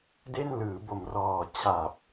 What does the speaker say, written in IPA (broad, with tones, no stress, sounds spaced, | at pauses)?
d e˥˩ n l ɯː˩˦ b o˨˩ m r ɔː˨˩ t͡ɕʰ a˨˩ p̚